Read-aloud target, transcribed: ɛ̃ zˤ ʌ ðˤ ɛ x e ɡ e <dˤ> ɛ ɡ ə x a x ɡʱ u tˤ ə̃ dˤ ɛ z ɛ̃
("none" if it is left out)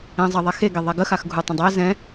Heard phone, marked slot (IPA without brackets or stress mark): ðˤ